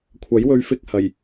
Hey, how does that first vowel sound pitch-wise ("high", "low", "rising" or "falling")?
rising